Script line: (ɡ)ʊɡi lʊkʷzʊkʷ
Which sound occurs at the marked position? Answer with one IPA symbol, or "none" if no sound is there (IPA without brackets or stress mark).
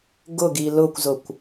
ɡ